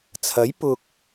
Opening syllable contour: rising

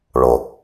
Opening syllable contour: low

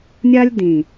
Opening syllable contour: high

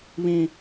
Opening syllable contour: high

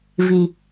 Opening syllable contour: low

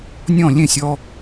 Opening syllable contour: falling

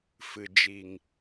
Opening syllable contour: low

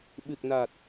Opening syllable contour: low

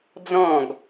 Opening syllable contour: falling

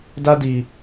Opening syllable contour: high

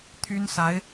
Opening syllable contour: high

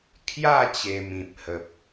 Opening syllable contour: falling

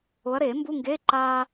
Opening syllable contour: rising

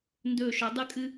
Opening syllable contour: falling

